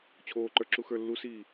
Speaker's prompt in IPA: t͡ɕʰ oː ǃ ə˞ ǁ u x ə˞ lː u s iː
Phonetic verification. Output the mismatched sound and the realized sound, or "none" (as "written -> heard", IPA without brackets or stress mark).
none